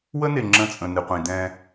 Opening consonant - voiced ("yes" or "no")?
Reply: yes